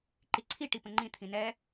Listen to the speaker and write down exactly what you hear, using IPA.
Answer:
ǃ i ǀʰ i ʈ i p ə̃ ŋ͡ǃ ĩ t̪ʰ ĩ n ɛ

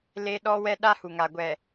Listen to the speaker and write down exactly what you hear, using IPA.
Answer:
l e˦ ɗ ɔ˦ w ɛ˦ ɗ a˦ h u˨ ŋ a˨ ɡʷ ɛ˨

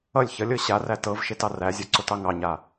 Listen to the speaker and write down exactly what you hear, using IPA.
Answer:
ʌ lʲ ç ʌ lʲ ɤ ɕ a r æ t ɤ v ʃ e t ɑ r æ zʲ ɤ ǀ o t ɑ ŋ ɑ ɲ a

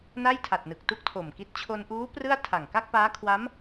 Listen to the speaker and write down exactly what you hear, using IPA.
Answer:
n a˥˩ j tʰ a˨˩ t̚ n ɯ˨˩ k̚ t u˥˩ k̚ tʰ o˨˩ m k i˦˥ t̚ t͡ɕʰ o˧ n ʔ uː˦˥ p r ɯ˥˩ a̯ tʰ a˨˩ ŋ k a˥˩ k̚ p aː˦˥ kʰ w a˦˥ m

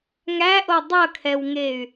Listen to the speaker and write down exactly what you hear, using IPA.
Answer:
ŋ æ ʔ o dˤ ʌ kʰ ɛ w ŋ e y̯

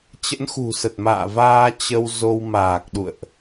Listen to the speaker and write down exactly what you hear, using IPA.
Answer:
t͡ɕ ə̰˧˥ n x ṳ˨˩ s ə˨˩ t̚ m a̰ː˧˨ v aː˧ t͡ɕ ə˧ w z o˧ w m aː˨˩ k̚ ɗ ṵ˧˨ ə̯ ʔ

